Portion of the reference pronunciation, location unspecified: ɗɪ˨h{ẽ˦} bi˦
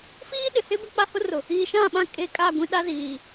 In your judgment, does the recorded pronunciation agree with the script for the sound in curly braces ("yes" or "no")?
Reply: no